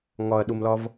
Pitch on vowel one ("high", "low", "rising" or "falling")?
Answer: low